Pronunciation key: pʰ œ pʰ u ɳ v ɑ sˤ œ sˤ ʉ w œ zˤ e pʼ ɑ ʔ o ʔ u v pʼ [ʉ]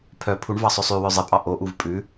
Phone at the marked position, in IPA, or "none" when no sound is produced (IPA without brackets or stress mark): ʉ